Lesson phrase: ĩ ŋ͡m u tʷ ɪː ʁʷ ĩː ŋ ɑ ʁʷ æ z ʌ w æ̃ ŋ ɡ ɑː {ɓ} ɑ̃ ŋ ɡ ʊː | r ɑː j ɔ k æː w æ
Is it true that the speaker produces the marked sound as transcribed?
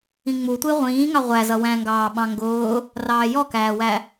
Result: yes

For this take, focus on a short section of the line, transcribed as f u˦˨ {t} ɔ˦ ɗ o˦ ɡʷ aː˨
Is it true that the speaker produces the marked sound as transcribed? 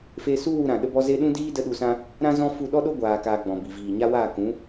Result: no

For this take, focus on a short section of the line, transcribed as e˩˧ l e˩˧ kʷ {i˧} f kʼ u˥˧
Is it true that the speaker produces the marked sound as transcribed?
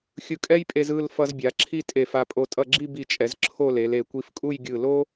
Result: yes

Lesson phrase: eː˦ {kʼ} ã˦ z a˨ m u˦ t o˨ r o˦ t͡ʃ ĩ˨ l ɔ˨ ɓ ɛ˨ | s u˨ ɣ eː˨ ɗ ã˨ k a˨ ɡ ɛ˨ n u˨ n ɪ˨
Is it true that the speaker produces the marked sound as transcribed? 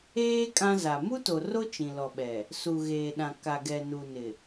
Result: yes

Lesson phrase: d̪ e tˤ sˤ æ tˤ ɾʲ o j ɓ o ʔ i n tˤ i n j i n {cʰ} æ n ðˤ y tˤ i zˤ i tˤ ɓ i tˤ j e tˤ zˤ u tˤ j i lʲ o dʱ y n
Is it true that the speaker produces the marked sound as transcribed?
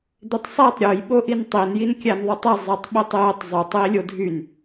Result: no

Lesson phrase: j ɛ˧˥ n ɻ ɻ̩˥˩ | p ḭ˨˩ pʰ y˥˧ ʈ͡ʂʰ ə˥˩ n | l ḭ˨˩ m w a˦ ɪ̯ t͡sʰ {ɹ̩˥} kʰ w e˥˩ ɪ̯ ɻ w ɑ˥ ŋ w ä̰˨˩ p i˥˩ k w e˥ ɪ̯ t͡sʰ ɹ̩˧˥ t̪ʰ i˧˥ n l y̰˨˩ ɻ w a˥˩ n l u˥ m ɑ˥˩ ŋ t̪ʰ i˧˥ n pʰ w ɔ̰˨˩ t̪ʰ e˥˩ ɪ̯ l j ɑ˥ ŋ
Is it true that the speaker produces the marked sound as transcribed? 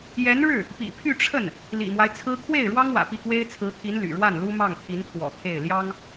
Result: yes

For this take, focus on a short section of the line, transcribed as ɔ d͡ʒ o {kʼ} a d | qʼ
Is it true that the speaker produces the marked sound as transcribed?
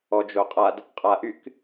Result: no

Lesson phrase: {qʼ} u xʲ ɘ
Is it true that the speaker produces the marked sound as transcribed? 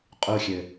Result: yes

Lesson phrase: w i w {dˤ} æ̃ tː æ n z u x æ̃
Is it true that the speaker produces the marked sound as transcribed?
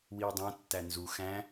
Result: yes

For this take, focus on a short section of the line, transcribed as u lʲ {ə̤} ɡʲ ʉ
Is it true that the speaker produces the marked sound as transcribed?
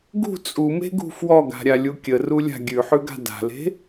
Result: no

